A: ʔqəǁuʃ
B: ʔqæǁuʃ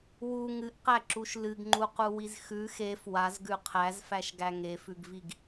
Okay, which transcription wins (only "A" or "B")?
B